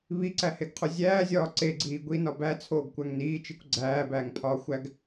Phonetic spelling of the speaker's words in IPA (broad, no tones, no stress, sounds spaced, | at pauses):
β i ǀ æ h e ɡ qʰ u zʲ æː zʲ ɒː ǀ e ɡ͡ǀ iː ɡʷ i n ɒ b æ t͡sʰ oː ɡ kʷ æ ŋ n iː t͡ʃ i kʷ ɡ͡ǀ æː b æː ŋ pʰ ɒː xʷ æ ɡ